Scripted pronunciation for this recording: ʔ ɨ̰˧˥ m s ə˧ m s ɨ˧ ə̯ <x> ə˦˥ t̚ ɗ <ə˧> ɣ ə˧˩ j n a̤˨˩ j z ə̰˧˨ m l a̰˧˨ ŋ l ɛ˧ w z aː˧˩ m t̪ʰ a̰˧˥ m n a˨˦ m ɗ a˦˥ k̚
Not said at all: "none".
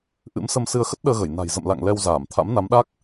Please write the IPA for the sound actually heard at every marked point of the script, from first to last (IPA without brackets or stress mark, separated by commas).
x, əː˧